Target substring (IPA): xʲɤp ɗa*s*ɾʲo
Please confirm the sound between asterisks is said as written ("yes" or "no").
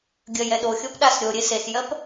yes